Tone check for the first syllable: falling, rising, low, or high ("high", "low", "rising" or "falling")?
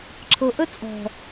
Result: low